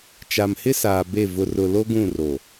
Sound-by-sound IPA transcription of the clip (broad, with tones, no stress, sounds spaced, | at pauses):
t͡ʃ a˨ m h ɪ˦ s aː˨ b e˦˨ v ʊ˨ r ʊ˨ l o˦ ɡ ũ˦˨ r o˨